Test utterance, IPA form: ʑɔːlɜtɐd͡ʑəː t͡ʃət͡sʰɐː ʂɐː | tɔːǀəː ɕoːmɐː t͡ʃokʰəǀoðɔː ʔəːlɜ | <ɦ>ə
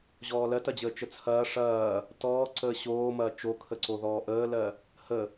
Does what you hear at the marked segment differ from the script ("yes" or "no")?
yes